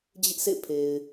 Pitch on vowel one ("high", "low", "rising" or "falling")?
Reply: high